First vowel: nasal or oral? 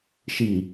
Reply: oral